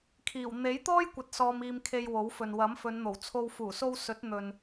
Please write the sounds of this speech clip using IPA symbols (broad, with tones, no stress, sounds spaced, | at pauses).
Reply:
kʰ iː˨˩ w n̪ e˨˥ j t̪ ɔː˥ j kʷ ɐ˨ t̚ s ɔː˧ m iː˧ m kʰ e˧ j w o˨˥ w f ɵ˨ n w ɐ˨˥ m f ɵ˨˧ n n̪ o˨˩ w t͡sʰ o˧ w f uː˨˩ s o˧ w s ɵ˨˥ t̚ n̪ ɵ˨ n